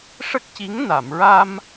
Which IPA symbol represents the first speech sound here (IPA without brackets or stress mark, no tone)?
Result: ʂ